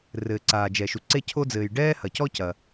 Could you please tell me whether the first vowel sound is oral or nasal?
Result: oral